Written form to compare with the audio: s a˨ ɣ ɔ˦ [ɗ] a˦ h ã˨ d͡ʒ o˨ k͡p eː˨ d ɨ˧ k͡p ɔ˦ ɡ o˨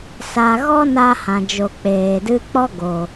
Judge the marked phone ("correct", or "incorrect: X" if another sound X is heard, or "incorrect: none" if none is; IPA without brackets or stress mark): incorrect: n